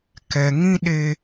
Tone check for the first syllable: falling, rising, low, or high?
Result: low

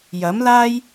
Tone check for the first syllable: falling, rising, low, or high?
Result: rising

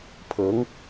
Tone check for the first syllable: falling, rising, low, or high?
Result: rising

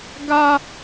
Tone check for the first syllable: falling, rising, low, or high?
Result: high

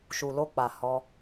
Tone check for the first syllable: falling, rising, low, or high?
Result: low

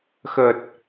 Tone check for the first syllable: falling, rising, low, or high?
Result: low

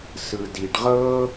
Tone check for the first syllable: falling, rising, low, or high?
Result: low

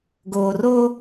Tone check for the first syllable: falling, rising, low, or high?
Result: low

